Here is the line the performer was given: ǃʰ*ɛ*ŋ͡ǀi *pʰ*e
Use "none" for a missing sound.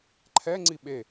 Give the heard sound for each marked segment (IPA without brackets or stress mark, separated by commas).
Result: ɛ, ɓ